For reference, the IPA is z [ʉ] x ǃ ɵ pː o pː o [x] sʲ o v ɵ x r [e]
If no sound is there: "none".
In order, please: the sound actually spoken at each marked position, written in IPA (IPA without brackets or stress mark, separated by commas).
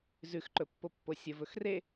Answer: ʉ, none, e